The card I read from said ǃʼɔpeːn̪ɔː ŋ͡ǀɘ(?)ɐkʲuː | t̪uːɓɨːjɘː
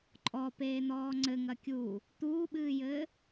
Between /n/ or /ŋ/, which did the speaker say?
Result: ŋ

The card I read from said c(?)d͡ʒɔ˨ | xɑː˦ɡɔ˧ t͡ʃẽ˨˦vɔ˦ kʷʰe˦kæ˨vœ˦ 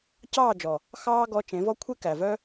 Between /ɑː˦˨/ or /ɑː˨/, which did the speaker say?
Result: ɑː˦˨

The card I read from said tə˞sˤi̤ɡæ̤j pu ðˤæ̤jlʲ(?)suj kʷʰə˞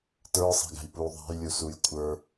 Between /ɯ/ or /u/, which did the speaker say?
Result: u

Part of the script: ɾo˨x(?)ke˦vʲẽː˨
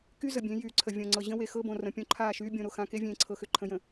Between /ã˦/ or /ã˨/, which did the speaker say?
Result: ã˨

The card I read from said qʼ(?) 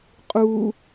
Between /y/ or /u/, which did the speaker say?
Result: u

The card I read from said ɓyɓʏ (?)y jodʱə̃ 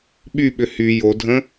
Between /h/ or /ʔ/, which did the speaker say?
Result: h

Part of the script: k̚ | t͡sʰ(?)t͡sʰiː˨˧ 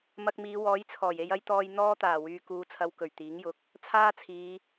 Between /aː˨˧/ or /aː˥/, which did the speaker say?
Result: aː˥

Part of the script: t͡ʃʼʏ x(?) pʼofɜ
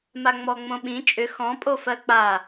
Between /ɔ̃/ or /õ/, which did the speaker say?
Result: ɔ̃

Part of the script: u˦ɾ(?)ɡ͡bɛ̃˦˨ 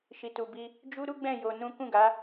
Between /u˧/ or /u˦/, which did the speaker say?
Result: u˦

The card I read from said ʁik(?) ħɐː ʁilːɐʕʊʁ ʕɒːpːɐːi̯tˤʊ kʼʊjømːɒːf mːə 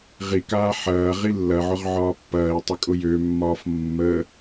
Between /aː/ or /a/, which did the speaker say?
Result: aː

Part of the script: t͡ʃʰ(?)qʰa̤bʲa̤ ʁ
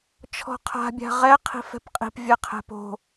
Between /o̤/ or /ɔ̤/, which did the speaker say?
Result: ɔ̤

